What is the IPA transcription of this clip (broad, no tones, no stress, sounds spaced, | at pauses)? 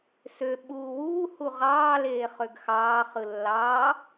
s ø ɓ uː w uː h u ʁ ɑː l eː χ ø ɡ x ɑː χ ɯ lː ɑː